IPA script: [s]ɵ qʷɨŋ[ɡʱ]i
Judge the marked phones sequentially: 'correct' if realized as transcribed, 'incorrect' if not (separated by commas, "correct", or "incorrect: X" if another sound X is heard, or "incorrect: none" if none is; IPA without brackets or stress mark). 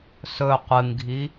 correct, correct